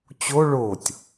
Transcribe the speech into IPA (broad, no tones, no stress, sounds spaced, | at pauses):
t͡ɕ o ɭ o tʲ